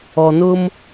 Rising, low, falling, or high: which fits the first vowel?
low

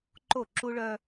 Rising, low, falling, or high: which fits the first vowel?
falling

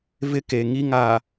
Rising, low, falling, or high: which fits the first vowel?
high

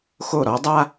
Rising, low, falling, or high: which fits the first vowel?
falling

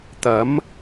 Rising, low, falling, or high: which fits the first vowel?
rising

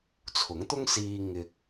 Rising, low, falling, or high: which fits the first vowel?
rising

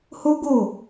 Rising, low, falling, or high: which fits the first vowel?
high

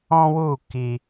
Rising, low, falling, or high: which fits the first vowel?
high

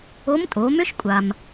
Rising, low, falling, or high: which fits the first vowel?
rising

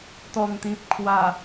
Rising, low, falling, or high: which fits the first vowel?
low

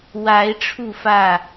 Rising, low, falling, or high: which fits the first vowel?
rising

